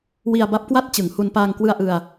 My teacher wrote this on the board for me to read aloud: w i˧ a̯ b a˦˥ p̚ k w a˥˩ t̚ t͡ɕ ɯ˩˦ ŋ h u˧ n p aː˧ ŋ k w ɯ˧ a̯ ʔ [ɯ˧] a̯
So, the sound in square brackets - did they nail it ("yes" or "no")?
yes